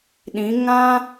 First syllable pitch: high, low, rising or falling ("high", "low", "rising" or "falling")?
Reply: rising